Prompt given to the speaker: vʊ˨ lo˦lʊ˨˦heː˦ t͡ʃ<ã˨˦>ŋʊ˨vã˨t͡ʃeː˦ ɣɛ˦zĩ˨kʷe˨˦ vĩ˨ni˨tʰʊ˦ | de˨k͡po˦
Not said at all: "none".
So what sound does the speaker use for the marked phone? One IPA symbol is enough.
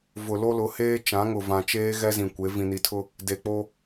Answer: ã˨˦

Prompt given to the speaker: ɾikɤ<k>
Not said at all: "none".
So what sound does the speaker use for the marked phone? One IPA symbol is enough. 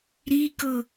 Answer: none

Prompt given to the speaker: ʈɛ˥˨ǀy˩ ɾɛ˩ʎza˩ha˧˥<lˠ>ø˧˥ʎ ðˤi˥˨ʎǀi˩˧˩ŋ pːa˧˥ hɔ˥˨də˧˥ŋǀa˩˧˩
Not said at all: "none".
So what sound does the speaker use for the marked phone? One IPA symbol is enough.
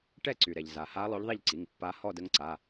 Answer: lˠ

